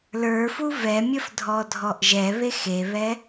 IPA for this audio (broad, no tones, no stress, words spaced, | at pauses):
lə˞fu vɛmʲəf dʱɔdʱɔʔʒɛβe xeβɛ